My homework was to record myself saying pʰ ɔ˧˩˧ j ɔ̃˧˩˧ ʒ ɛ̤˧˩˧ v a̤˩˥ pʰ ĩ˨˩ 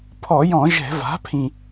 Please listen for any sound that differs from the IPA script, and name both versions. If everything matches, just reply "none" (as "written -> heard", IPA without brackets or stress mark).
none